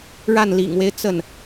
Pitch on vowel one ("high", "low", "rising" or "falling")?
falling